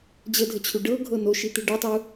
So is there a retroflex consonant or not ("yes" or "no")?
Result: yes